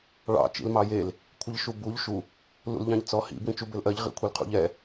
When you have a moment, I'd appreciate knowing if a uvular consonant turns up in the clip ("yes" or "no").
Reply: yes